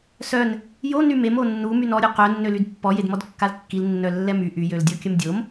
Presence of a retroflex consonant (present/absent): absent